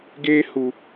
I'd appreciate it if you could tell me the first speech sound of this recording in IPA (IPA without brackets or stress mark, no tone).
ɡ